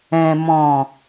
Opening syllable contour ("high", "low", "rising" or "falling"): low